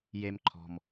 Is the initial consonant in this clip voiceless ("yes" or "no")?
no